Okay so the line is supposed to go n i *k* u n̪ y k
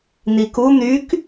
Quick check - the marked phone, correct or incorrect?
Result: correct